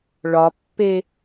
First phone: ɭ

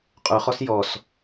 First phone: qʼ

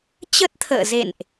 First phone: t͡ɕ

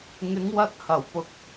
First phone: ŋ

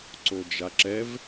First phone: ǀ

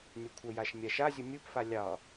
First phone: nʲ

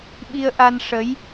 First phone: ɓ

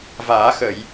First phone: v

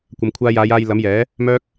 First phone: kʷ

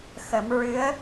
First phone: x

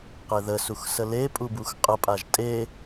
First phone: q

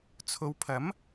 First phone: t͡sʰ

